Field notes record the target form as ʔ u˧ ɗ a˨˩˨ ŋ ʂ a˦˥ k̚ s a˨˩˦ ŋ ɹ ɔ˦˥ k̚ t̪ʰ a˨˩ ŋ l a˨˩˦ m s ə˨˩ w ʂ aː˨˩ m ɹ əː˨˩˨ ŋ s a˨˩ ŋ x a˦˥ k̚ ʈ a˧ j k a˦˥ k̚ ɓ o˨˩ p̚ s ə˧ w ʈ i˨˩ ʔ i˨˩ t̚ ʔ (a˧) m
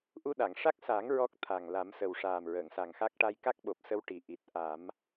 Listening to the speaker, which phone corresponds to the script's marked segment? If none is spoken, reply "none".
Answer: a˨˩˦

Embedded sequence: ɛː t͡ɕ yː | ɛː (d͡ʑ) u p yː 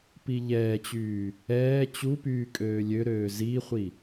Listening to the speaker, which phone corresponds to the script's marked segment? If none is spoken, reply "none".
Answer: t͡ɕ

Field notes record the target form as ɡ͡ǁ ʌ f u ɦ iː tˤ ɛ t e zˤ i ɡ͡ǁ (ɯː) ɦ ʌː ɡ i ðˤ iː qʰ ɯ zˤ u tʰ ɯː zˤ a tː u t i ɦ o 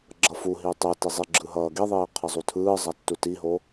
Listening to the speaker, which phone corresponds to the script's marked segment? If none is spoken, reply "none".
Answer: ɯ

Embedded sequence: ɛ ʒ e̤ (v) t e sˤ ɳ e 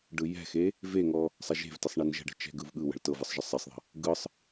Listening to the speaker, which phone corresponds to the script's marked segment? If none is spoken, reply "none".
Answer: v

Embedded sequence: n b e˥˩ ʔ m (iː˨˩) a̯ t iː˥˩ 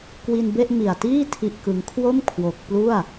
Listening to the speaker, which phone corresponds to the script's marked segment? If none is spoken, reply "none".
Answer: i˨˩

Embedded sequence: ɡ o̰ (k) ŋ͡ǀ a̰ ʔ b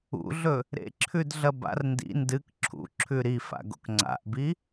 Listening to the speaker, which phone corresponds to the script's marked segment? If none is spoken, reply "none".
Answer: k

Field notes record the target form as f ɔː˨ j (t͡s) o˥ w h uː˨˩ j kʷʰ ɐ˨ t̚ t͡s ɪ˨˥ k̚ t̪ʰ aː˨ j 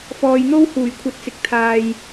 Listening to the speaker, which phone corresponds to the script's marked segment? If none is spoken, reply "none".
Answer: n̪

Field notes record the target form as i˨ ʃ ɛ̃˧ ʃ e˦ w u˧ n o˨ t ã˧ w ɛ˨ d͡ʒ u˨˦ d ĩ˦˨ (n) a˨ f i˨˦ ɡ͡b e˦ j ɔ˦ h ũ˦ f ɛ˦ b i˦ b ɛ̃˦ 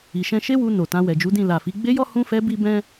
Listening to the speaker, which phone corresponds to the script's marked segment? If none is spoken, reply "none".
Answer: l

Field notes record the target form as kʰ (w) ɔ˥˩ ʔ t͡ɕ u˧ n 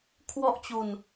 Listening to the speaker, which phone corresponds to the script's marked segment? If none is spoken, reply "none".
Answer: w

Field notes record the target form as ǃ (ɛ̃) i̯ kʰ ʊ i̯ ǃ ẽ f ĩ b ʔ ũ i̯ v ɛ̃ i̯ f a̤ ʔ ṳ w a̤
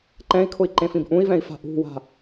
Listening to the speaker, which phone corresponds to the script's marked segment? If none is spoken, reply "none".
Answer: ɛ̃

